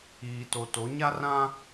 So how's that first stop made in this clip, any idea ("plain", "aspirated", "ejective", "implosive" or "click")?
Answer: plain